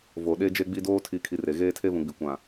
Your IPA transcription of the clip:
vo˨ɗe˦ d͡ʒe˦ɡ͡bi˦ doː˦tʰi˨˦kʰi˨ re˨ɣeː˦tʰe˦ vũ˨ɡ͡bi˨kʷã˨

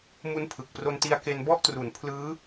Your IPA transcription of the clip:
mu˦˥npʰɯ˨˩k̚ pro˧nti˧a̯ke˧n bɔ˦˥ʔtru˩˦n pʰlɯː˦˥

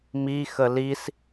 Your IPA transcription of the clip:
mi xəlis

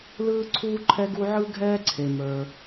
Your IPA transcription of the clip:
lɯː˥ǀʰuː˥ ǃʰɛ˥ɡu˥ ʕɯ˥ɡʱɛː˥ ǀʰe˩ mə˞˩

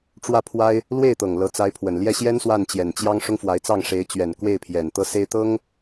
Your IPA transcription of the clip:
ʈ͡ʂwä˥˩pʰwa˥ɪ̯ | lwe˥˩ɪ̯t̪ɤ˨˩ŋ lɤ˧˥t͡sa˧˥ɪ̯pʰwə˨˩n ljɛ˥˩ɕjɛ˥n swa˥˩nt͡ɕjɛ˨˩nt͡ɕjɑ˥ŋ ʂʊ˥ŋfwa˧˥ɪ̯t͡sɑ˥˩ŋ ʂe˧˥ɪ̯ t͡ɕɥɛ˨˩nkwe˥˩ɪ̯pʰjɛ˨˩nt̪ɤ˥˩ se˥ɪ̯t̪ɤ˥ŋ

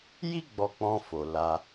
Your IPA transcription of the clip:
ji˦ ɡ͡bɔ˧k͡pɔ̃˧fo˨ la˧

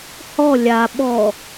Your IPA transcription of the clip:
hɔ lʲa ɓɔ

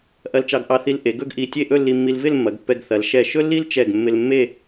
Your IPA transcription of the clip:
ʔɐ˧lt͡ʃɑ˧ɡʔɑ˧θi˧l ʔe˩˧ɡɵ˥˧ɡʔi˧˩ tʲe˥˧ʔɵ˥˧lːi˧mːi˧l vɪ˥˧lmːɐ˩˧ɡpːɛ˧ɡ θɐ˩˧lʃɛ˧˩ ʃɵ˥lːi˥lt͡ʃɛ˧˩ɡ mːɪ˧l mːe˥˧

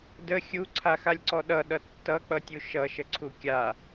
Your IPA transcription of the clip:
də xʲuǀʰaxalʲǀɔ ɗʌɗʌ tːʌk͡pʌtʲu ʃʌʃəǀʰu kʲa

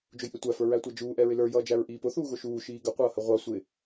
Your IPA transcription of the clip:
d͡ʒʊjʔɪtʷæ fə˞ɹætʷæd͡ʒuː ʔɛɹɪlə˞ jʌːd͡ʒæɹʔiːpʊ θuːɣʊʃuː ʃiːɡə qʷʌːhəʁʷɑ sʷɪ

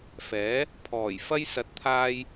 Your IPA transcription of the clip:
fɛː˨˥ | pʰɔː˨˩jfɐ˧j sɐ˨˥t̚t̪ʰaː˧j

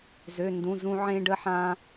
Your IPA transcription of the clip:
zø˩˧˩ndũ˩˧˩zũ˧ ʕẽ˧ɖə˧ħã˧

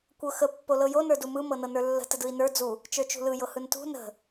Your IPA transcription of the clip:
kʷɤxə pːolɤjo nə˞dumɯ mɤnɤnə˞lːə̤ tədɯi̯nə˞ d͡zu | t͡ʃə˞t͡ʃṳlɯ jɤhɯntṳ nə̤

